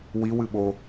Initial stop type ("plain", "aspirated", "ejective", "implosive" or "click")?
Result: implosive